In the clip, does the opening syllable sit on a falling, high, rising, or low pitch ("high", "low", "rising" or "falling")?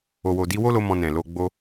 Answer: low